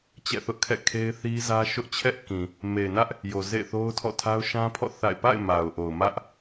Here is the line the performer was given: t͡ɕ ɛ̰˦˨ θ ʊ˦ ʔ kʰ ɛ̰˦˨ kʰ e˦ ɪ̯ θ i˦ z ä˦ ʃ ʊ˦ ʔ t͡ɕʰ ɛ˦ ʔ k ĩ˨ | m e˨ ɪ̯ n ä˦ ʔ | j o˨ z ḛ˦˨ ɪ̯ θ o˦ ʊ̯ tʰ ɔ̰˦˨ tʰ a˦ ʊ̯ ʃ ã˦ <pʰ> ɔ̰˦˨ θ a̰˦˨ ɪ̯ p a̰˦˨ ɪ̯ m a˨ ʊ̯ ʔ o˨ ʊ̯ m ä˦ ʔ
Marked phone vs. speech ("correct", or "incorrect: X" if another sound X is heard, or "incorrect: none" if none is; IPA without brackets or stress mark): correct